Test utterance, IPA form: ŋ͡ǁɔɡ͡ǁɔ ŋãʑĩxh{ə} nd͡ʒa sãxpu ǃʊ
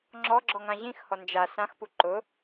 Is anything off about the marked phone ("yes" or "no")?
yes